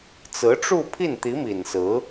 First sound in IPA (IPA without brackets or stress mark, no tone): t͡s